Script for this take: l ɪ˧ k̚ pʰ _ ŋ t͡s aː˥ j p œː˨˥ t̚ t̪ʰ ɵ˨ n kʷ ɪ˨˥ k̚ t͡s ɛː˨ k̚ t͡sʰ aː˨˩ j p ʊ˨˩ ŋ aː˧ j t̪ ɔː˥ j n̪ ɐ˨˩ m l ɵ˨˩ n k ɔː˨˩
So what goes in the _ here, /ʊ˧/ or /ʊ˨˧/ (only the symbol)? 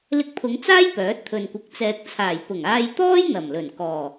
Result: ʊ˨˧